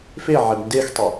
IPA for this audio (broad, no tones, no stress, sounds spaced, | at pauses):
f e ʕ ɛ b n d e x tˤ e